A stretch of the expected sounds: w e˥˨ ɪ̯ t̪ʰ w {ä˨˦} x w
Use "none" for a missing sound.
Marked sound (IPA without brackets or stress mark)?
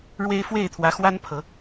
ä˨˦